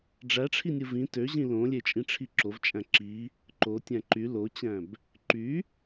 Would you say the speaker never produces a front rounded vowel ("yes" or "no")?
no